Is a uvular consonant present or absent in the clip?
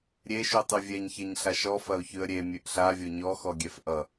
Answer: absent